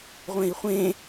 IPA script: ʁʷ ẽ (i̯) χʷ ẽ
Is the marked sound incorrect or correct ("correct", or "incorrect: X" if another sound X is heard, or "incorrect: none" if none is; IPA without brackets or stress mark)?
correct